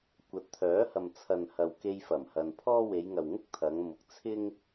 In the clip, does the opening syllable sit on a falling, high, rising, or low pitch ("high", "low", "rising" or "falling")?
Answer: rising